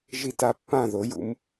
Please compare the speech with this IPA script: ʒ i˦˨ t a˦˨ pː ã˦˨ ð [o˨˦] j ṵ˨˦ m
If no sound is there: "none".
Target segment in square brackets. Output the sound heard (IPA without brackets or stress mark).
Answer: o˨˦